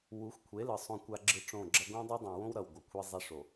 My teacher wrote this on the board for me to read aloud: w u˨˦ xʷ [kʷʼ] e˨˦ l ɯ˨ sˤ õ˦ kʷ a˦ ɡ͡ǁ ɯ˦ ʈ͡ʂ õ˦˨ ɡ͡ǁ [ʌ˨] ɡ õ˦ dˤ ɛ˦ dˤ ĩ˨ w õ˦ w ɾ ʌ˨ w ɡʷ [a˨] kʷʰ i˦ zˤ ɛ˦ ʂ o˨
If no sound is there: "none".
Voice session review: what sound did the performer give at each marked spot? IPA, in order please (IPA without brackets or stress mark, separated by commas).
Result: kʷʰ, ʌ˦, ʌ˨